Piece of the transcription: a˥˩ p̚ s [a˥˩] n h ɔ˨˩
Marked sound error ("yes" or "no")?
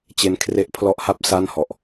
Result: no